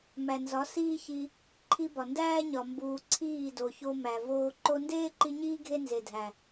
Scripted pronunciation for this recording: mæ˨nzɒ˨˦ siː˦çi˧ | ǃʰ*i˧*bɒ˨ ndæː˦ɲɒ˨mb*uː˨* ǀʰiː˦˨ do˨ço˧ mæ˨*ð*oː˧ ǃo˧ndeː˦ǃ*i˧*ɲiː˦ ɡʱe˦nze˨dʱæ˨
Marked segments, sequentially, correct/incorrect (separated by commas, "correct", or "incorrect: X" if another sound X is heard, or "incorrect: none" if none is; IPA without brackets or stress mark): correct, correct, incorrect: v, correct